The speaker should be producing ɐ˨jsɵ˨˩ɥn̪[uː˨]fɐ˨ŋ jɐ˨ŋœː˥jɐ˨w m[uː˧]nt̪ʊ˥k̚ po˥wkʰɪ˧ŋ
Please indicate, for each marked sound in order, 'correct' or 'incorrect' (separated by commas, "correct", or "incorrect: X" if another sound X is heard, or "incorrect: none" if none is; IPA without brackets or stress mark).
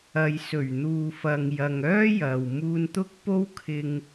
correct, correct